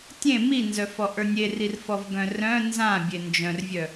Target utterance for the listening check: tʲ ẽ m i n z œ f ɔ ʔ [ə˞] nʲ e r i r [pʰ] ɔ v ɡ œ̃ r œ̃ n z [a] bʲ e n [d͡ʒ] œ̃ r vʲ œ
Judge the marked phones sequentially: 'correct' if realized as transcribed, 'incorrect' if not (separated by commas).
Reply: correct, incorrect, incorrect, correct